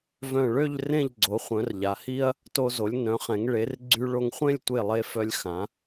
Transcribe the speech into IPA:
vœ̃˧˩ɭø˥˧ʎ rẽ˥˧ʎɡ͡ǀo˩˧ χʷœ̃˩˧r ʎa˩˧hi˥ɐ̯ | to˧zo˩˧lʲ nœ̃˩˧χɛ̃˩˧ŋ ɭe˩˧rɡ͡ǀy˧ ɭo˧ŋχʷẽ˥˧lʲtʷe˧˩lˠe˧ fœ˧lʲxã˩˧

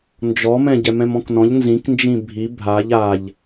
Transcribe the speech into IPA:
nd͡ʒɔmɛ̃ ɟɛmɛ̃mɔ̃knɔ̃ʎ nzĩknd͡ʒĩ bʱi bʱaʎ aʎ

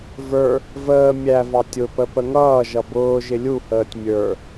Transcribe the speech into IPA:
və˞ | vəː mʲævɑ tʲʊpə pəŋʌːʒʌ bʊːʒɪ lʲuhəːtʲ mʲə˞

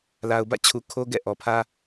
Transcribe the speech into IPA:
la˨ʊ̯bä̰˦˨t͡ɕʰu˨ kʰo˦ɡɛ̰˦˨ʔɔ˨pʰä˦

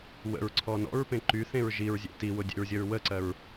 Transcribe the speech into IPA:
wə̰ɹǀʰɔ nɔ̰ɹpẽ ǃyθẽɹ ʒiɹzʲḛ tiwʊdʲḛɹzʲəɹ wəǀɜɹ

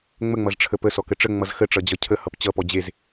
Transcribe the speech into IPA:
ŋ͡məŋ͡mʌzʈ͡ʂʰə pəsɔkə ʈ͡ʂəŋ͡mʌz xəʈ͡ʂʌd͡ʑʌ cʰəhʌp t͡ɕʌpɔ d͡ʑez

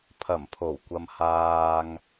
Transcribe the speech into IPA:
pʰɐ˨˩mpʰo˨˩wkʷɐ˨m haː˨ŋ

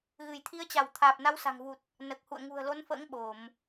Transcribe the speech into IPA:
ɣɨ˧˩jt̪ʰi˨˦ə̯t͡ɕa˧˩w t̪ʰaː˨˩p̚na˨˦wsa̤˨˩ŋvu˨˩t̚ | nəː˨˩k̚hṵ˧˨ə̯ ŋṳ˨˩ə̯lo˨˦nfə̰ː˧˥ŋ ɓo˧˩˨m

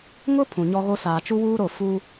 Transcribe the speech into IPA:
ŋʊ˦ pʰũ˨ɲɔ˦ɣo˦ saː˨t͡ʃu˦wuː˦ɾo˦˨ fu˦

